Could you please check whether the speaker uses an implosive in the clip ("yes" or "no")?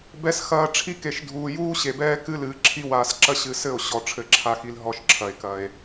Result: no